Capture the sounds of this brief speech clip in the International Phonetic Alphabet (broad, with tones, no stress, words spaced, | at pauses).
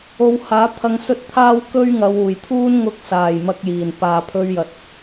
o˨˧whaː˨˥ t̪ʰɐ˧ŋsɵ˥t̚t̪ʰaː˥w kɵ˥ɥ ŋɐ˨˧wuː˨˩jt̪ʰuː˥n ŋʊ˧k̚saː˨˩j mɐ˧k̚jiː˨˩n paː˨pʰɵ˧ɥjɐ˨t̚